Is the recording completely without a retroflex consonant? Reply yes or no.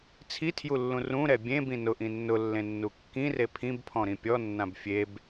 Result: yes